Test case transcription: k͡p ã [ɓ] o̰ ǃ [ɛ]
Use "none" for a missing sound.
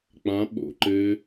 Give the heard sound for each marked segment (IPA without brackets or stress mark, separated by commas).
ɓ, ɘ